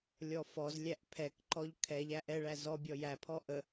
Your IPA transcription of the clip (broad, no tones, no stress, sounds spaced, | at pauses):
lʲ ɔ f ɔ z lʲ æ ʔ pʰ ɛ k ǃ ɔ ʎ kʰ ɛ ʎ æ ʔ ɛ ɭ æ z ɔ bʲ ɔ j æ pʰ ɔ ʔ ə